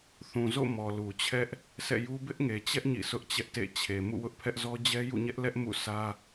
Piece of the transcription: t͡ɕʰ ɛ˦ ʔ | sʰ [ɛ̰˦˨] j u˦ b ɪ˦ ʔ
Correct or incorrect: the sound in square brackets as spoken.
correct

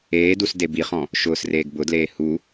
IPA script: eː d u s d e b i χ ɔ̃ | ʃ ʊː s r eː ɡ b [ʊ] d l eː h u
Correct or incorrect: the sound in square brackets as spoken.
correct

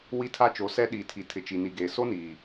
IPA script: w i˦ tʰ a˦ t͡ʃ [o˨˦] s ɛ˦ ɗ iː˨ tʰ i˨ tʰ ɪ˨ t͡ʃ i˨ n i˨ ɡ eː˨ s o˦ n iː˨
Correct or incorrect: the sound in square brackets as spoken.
correct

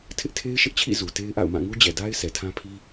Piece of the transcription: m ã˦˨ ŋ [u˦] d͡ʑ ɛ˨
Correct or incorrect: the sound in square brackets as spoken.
correct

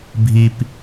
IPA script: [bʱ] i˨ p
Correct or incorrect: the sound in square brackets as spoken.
correct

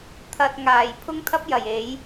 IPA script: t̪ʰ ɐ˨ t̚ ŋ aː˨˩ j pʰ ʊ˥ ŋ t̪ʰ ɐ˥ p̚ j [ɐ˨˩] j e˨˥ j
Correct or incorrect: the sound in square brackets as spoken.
correct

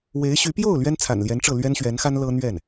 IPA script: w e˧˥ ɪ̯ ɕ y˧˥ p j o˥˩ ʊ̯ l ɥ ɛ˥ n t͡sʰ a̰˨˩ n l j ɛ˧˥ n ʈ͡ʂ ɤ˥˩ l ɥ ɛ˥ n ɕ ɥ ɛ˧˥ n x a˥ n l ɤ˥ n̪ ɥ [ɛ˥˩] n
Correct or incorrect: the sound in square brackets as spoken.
correct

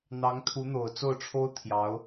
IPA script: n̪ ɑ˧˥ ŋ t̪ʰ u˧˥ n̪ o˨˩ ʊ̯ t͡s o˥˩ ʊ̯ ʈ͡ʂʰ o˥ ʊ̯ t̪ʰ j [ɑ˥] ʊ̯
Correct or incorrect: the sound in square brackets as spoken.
incorrect: ɑ˧˥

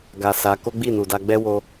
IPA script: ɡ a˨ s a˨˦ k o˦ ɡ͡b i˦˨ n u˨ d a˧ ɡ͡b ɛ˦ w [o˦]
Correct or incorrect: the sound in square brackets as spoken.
incorrect: o˧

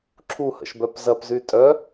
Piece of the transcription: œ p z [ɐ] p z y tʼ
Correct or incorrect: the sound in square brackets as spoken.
correct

